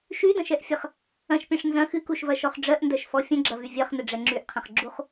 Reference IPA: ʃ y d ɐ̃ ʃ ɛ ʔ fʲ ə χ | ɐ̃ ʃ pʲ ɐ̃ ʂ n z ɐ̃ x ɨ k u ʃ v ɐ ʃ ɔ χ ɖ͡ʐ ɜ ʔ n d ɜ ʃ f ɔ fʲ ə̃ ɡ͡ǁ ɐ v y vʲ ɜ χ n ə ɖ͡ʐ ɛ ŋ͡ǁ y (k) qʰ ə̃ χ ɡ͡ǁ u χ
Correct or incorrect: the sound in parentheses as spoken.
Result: incorrect: ʔ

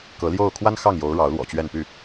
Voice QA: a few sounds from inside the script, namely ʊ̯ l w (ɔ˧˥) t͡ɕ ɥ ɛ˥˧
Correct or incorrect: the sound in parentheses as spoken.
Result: incorrect: ɔ̰˨˩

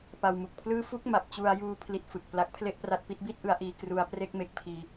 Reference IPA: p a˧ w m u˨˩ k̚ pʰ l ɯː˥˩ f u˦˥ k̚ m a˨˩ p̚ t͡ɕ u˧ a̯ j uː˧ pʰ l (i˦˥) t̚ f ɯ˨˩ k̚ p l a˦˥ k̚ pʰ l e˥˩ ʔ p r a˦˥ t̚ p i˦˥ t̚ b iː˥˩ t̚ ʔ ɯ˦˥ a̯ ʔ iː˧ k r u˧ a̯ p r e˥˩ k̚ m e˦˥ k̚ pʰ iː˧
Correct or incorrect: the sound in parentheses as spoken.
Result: correct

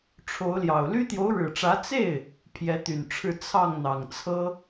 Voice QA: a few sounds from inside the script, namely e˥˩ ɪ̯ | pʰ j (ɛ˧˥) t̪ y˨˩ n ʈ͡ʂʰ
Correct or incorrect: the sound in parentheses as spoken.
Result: correct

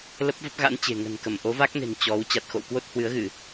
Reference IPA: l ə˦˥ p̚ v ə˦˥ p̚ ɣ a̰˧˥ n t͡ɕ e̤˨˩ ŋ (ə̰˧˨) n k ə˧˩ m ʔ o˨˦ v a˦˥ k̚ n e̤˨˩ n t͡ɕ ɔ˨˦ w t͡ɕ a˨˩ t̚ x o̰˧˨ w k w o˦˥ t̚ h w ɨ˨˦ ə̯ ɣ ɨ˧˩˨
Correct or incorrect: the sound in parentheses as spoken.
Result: incorrect: ə̤˨˩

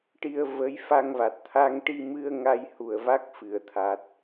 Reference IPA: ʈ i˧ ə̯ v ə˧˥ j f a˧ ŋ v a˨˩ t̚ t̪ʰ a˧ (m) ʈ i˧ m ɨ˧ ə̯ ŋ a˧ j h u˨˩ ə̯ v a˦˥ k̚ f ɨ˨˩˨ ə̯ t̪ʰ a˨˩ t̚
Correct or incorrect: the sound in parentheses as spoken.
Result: incorrect: ŋ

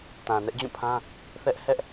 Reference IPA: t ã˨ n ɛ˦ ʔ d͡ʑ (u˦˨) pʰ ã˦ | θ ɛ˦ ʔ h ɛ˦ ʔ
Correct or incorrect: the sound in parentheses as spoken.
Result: incorrect: ũ˦˨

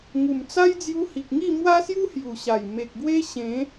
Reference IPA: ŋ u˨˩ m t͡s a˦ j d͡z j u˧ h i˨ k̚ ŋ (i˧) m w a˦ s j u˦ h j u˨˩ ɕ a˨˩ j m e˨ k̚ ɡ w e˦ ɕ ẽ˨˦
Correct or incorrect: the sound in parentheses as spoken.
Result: incorrect: i˥˧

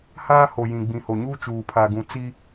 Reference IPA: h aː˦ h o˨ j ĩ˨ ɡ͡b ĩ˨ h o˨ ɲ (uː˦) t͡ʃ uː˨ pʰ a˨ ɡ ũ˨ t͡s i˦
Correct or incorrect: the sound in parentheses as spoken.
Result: correct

